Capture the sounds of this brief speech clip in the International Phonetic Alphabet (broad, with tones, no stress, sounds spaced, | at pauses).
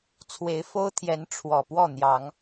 t͡sʰ w e˨˦ ɪ̯ f o˦ ʊ̯ t̪ʰ j ɛ˨˦ n ʈ͡ʂʰ w ɔ˨˩ p w ɔ˥˨ n̪ j ɑ˨˦ ŋ